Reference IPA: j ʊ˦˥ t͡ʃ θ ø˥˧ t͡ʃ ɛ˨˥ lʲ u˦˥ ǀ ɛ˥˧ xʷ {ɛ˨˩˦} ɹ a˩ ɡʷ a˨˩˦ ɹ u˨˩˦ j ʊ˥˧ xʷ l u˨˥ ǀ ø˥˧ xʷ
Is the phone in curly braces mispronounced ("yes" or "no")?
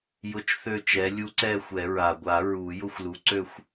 no